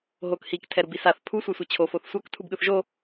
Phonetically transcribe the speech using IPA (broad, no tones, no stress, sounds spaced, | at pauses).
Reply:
ɦ o k h i k tʰ ɛ ɾ u b i s a θ pʰ u sʷ ɛ sʷ ɛ t͡ɕʰ o f o θ sʷ a k tʰ u b ɠ ɯ θ ʒ o